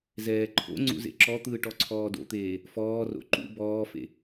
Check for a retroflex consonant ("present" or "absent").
present